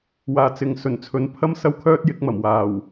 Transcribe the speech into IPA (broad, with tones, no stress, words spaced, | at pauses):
waː˨ t͡sɪ˨ŋ sɵ˨˩nt͡sʰɵ˨˥n pʰɐ˥m sɐ˥wkʰœː˥t̚jɪ˨˥k̚mɐ˨˩m waː˨˩w